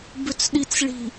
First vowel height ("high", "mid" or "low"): high